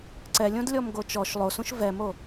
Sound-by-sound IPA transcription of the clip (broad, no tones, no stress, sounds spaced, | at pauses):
ǀ ɛ lʲ õ d lʲ ɔ m ɡ o t͡ʃ ɔ ʃ lˠ o s ũ ʃ v ɛ m o